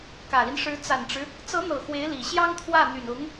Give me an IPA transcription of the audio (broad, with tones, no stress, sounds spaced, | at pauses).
k ä˨˩ l i˦ n ʂ ɻ̩˧˥ t͡s a˨˩ n ʈ͡ʂ ɻ̩˦ | t͡s ɤ˧˥ n̪ ɤ˨˩ x w e˧˥ ɪ̯ l i˨˩ ɕ j ɑ˥ ŋ t̪ʰ w ä˥˩ n̪ y˨˩ n ʊ˧˥ ŋ